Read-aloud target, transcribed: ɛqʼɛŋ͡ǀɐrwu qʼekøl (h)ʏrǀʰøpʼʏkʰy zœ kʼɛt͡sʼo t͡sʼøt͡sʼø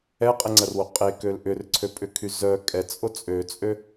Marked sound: incorrect: ʔ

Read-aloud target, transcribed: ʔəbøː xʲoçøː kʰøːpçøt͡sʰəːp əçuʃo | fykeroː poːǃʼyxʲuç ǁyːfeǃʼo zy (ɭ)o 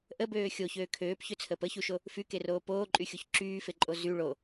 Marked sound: correct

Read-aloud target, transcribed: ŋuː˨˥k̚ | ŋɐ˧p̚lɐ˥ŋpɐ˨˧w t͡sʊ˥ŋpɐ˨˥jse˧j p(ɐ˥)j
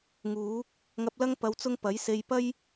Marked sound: correct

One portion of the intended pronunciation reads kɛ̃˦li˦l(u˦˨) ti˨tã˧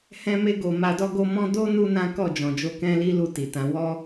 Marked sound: correct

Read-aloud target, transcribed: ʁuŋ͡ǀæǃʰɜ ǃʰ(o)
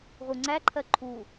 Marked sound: incorrect: u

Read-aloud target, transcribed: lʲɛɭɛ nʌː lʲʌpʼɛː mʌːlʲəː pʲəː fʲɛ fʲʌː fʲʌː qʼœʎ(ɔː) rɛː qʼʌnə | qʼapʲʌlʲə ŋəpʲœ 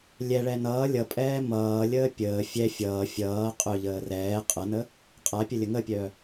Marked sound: incorrect: əː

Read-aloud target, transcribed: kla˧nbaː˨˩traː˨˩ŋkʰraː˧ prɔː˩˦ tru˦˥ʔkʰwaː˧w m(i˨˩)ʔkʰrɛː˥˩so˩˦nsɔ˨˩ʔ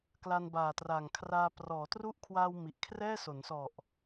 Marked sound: correct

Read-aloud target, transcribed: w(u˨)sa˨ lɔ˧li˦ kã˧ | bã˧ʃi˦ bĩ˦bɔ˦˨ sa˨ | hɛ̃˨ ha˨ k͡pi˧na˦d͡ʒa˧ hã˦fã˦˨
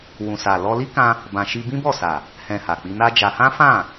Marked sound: incorrect: ũ˨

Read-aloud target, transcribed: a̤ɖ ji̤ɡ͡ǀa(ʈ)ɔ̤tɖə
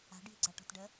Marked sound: correct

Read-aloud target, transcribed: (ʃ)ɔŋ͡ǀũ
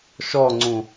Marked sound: correct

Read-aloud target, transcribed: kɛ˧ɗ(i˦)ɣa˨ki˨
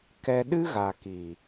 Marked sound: incorrect: ɨ˦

